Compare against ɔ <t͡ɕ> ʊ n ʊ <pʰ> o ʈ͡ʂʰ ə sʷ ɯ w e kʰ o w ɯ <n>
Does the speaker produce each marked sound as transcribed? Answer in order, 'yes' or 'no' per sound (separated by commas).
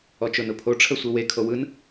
no, yes, yes